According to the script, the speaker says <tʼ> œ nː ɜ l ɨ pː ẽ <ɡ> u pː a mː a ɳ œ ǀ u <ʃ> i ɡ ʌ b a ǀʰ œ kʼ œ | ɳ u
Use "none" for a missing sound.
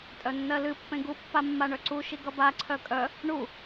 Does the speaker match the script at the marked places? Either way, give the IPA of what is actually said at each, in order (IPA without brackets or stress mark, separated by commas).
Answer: tʼ, ɡ, ʃ